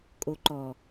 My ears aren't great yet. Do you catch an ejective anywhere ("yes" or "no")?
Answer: yes